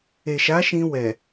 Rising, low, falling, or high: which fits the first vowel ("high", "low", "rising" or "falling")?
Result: low